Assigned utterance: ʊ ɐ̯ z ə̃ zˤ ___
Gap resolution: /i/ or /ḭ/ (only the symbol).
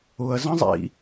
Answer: ḭ